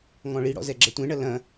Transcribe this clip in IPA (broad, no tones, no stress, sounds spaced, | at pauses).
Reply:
ŋ ɔ̃ ɭ i ɽ ɔ̰ z ɛ ɡ͡ǁ ɐ tʷ ẽ ɳ ɐ l ɐ̃